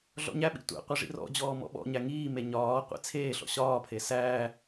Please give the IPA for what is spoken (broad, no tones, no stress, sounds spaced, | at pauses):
ɮ ɔ̰ ɲ æ ɓ ḭ tʷ æ̰ qʷ i ʐ ḭ r ɔ̰ d͡ʑ ɔː m ɔ̰ ɓ ɔ̰ ɲ æ ŋ iː m e ɲ ɒː qʷ ḭ t͡sʰ eː ɬ ɔ̰ ɕ ɒː pʰ e s æː